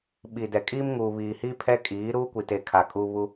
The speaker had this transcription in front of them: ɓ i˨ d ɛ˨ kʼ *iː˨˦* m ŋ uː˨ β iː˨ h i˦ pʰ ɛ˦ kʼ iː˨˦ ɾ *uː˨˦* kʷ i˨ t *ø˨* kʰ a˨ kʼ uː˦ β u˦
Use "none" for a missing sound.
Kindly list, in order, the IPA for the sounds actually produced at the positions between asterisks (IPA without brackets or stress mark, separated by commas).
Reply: iː˦, uː˦, e˨